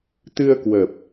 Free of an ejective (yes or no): yes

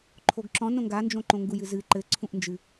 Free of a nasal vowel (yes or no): no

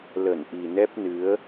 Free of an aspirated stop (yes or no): yes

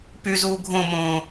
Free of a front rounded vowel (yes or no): no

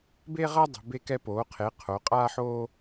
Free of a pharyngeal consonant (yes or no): no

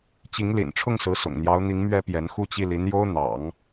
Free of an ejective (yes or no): yes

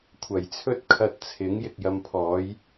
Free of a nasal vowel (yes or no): yes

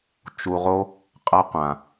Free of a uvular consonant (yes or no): no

